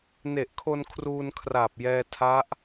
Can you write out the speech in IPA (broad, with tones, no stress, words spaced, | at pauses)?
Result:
ne˨˩ʔkʰo˧n kʰruː˧n kʰraː˨˩p̚jɛː˧ tʰa˦˥ʔ